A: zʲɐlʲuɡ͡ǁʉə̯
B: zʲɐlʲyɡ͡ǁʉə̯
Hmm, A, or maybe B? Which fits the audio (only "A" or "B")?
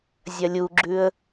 A